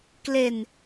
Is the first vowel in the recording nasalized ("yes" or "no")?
no